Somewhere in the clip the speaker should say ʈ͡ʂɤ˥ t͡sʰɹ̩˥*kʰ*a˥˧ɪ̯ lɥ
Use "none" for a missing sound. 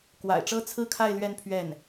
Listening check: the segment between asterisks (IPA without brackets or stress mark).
kʰ